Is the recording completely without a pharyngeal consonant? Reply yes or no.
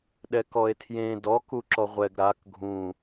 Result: yes